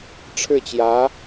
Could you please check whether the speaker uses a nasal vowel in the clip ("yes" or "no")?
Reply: no